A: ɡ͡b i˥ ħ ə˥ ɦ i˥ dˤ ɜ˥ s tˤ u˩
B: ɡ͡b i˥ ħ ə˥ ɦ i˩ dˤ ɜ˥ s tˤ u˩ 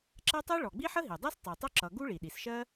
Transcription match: B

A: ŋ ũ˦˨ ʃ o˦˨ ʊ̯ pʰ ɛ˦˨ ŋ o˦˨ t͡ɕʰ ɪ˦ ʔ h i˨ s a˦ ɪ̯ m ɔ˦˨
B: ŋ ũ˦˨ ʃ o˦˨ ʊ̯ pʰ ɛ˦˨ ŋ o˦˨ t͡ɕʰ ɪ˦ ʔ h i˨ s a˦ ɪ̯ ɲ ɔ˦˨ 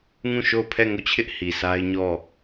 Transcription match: B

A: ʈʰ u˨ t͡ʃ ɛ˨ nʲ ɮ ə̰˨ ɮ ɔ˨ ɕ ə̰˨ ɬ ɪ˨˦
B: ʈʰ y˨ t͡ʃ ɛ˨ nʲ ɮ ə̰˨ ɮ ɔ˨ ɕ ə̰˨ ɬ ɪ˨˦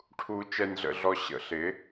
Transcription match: A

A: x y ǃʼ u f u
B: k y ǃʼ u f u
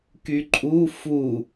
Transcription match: B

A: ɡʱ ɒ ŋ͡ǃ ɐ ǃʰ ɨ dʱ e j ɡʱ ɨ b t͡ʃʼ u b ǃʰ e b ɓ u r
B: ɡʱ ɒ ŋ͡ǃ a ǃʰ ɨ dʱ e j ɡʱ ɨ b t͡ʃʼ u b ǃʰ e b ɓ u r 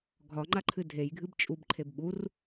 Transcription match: B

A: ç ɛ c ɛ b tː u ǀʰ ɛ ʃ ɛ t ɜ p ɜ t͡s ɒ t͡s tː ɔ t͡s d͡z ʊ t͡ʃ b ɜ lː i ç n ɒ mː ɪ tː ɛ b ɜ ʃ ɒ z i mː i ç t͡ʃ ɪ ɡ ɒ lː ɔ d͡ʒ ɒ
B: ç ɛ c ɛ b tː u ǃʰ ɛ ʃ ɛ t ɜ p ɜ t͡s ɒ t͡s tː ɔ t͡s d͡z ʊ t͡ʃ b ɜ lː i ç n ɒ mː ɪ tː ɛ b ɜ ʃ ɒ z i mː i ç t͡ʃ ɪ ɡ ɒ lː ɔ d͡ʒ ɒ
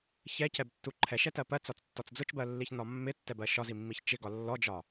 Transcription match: B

